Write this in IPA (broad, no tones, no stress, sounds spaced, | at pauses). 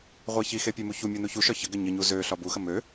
ʁʷ e ç i x e pʲ e m u ç u mʲ o n u ç u ʃ ɒ ç ə ɡ ɘ ɲ ə ɲ u z ø ɬ ɒ b u x ə m ø